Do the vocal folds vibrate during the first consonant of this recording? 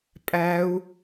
no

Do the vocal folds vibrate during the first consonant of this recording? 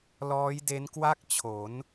yes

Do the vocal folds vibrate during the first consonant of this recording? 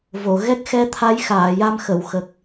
yes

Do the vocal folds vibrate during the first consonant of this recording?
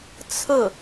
no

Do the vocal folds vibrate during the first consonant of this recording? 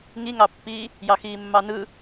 yes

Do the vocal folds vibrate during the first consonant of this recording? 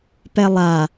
no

